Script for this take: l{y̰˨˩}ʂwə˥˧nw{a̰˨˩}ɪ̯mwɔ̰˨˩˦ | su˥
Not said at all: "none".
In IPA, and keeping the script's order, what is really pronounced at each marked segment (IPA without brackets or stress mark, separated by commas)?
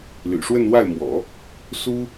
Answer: y̰˨˩, a˥˩